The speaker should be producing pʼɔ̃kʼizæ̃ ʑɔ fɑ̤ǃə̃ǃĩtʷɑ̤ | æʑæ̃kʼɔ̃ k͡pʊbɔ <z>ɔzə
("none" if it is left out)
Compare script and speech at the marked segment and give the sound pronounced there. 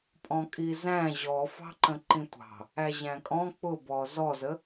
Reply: z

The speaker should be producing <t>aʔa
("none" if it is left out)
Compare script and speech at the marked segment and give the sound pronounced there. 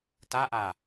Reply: t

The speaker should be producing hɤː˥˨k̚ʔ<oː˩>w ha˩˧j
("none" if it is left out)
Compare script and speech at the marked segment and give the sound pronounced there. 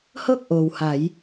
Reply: oː˩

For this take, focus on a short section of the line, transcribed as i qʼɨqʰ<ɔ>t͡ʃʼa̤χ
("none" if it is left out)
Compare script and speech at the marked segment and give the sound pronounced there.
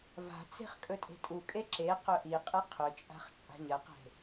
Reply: ɵ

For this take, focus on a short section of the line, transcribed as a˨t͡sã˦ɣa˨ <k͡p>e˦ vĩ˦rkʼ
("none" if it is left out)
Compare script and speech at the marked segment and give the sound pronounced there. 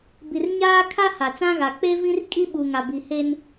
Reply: k͡p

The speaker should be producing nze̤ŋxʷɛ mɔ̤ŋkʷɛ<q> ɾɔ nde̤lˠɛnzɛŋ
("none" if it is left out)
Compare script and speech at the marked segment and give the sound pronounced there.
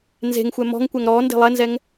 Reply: ŋ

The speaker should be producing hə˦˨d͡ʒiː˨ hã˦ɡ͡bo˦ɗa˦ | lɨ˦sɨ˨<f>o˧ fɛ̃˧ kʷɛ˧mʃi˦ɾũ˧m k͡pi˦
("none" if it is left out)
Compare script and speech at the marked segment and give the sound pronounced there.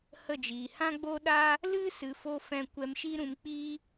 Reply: f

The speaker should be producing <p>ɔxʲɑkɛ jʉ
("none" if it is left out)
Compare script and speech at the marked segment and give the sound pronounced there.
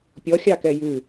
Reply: pʲ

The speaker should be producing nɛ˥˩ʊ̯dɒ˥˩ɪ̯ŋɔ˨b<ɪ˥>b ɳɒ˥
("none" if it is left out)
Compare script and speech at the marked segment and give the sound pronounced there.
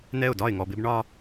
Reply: ɪ˥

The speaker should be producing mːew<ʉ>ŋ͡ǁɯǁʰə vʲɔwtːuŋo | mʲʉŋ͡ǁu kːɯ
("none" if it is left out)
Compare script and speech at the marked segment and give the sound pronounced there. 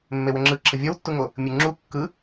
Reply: ə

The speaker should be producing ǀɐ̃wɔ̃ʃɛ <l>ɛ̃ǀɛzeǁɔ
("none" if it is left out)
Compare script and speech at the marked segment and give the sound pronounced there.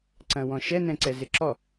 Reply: n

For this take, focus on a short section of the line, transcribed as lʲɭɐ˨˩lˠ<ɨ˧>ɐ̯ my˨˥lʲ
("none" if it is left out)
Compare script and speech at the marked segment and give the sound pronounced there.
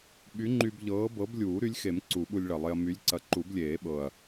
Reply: e˧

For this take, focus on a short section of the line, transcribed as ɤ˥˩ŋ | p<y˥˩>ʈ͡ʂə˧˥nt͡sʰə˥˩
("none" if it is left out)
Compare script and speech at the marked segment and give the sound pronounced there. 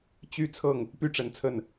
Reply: y˥˩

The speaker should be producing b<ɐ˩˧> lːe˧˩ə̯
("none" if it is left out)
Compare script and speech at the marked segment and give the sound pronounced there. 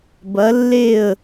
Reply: ɐ˩˧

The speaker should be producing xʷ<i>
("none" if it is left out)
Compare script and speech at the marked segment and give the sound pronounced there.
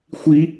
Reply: i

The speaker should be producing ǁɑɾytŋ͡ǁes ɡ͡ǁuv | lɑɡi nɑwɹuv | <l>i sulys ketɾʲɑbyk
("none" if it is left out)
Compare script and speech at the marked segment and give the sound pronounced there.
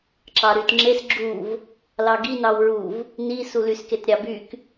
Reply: n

